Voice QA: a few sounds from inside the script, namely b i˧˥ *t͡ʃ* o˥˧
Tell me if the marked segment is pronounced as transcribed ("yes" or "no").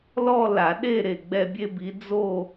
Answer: no